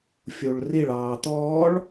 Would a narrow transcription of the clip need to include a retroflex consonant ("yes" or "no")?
yes